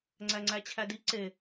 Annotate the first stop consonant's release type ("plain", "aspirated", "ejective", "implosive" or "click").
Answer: click